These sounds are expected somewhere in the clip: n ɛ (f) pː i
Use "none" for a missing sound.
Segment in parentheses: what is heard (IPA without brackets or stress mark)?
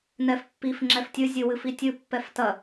f